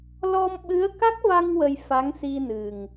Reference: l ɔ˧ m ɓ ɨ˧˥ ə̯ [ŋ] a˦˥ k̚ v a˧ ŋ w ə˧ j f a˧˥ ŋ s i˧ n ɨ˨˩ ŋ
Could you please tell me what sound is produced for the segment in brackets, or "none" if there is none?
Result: k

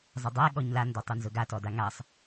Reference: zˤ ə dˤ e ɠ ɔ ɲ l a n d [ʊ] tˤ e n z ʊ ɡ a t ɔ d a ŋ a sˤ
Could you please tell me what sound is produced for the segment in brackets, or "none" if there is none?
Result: ɔ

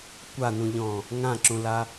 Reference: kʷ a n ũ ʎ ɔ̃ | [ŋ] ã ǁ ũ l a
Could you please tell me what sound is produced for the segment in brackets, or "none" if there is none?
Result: ŋ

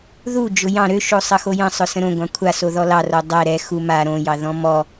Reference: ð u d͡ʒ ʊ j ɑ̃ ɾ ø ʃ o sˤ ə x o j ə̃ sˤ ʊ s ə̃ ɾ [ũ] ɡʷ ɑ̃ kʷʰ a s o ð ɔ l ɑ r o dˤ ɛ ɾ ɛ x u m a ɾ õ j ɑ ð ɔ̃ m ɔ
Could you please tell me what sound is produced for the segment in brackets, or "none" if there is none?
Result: õ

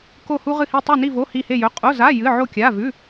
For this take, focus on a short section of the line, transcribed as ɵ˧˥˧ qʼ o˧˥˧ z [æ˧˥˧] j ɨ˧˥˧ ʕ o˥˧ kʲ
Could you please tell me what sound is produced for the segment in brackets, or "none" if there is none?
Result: a˧˥˧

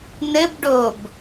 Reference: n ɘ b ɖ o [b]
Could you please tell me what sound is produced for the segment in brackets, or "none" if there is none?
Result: b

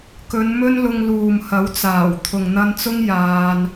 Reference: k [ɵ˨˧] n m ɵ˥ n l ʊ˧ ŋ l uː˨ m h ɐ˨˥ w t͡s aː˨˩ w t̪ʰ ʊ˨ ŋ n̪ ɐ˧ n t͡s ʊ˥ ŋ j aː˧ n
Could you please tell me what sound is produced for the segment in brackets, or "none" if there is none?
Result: ɵ˨˧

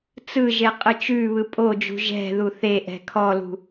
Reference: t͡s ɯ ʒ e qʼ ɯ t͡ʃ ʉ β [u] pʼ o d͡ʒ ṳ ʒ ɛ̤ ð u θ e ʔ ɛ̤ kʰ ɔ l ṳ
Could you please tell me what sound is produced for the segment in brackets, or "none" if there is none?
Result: ɯ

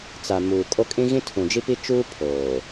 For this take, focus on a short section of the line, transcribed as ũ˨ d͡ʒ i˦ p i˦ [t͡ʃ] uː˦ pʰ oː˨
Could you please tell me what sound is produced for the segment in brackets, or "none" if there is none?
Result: t͡ʃ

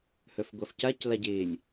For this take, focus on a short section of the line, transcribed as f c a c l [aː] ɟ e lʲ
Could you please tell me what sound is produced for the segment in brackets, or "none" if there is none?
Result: a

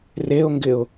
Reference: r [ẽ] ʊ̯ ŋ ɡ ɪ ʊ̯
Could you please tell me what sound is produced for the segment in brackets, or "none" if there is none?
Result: e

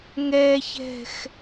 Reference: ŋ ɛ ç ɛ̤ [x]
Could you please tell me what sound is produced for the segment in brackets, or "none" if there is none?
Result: x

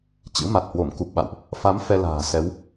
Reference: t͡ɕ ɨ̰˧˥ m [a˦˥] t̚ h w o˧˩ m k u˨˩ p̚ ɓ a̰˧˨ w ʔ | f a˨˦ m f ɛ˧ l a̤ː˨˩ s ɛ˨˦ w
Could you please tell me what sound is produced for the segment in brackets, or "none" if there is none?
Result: a˨˩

